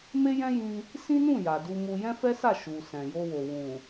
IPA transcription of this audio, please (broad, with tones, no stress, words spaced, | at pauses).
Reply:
me˦ jɛ̃˦jĩ˧ | sĩ˦nũ˦˨ ja˨du˧mu˧ jɛ̃˦fɛ˦sa˦˨ ʃu˨ sɛ̃˨jo˧wo˨ wũ˨